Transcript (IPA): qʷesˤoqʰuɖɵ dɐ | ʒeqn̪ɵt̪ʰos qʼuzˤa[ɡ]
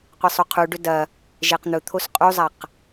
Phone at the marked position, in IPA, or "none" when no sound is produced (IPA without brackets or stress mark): q